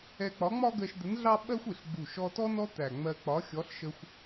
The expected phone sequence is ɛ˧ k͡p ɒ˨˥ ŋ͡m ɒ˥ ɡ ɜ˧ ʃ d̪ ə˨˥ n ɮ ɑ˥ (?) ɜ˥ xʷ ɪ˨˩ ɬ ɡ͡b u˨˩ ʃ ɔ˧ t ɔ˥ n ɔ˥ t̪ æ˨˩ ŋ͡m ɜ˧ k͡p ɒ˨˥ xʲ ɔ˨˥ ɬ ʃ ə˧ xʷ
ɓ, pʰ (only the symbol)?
ɓ